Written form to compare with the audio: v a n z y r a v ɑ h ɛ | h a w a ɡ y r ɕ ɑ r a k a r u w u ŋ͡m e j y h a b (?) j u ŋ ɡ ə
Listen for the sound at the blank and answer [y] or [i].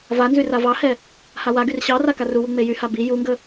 i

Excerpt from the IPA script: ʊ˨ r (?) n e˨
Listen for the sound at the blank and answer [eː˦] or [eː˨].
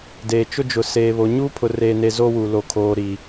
eː˨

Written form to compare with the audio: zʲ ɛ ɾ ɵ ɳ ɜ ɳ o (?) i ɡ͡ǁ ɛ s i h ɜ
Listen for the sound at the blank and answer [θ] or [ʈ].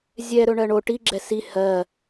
ʈ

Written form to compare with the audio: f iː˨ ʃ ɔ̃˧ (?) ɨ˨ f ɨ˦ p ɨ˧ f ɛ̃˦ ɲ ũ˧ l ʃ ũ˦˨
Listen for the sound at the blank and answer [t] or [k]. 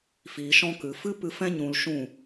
k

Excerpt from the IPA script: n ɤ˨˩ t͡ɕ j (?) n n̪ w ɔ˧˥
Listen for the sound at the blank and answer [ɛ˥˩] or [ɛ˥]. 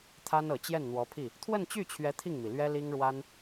ɛ˥˩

